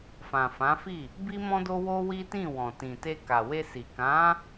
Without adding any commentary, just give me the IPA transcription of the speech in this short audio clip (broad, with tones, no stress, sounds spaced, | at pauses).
f ã˨ f ã˨˦ f i˦˨ | b i˦ m ɔ̃˦ d o˦ w o˦ w i˦ t ĩ˦˨ w ɔ̃˨ t ĩ˨ t e˧ k a˨ w e˧ s i˨ k ã˨˦